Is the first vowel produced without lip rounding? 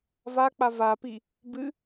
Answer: yes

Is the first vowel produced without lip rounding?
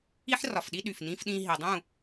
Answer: yes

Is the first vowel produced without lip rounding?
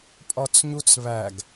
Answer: no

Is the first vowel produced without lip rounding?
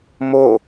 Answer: no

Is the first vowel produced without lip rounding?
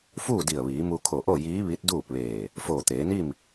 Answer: no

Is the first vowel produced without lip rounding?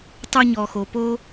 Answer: no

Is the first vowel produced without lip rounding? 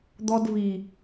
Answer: no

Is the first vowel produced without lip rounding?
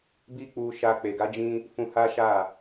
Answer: yes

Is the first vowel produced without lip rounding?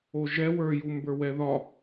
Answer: no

